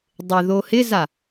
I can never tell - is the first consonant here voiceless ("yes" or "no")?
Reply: no